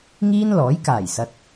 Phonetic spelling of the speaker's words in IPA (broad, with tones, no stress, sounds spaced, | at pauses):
ŋ iː˥ n l ɔː˨˥ j k aː˨˩ j s ɐ˨ t̚